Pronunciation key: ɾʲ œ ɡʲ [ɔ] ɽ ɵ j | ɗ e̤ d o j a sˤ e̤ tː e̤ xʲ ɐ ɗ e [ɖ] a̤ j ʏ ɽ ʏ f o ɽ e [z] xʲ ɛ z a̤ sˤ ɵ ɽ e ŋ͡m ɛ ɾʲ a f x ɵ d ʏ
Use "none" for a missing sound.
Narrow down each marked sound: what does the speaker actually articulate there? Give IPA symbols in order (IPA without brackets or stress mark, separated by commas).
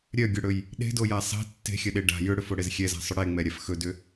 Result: ɵ, ɖ, z